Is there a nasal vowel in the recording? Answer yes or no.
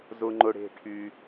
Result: no